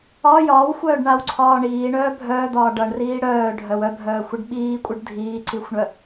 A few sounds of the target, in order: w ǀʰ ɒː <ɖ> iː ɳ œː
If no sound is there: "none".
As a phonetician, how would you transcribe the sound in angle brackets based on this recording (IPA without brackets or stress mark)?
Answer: ɳ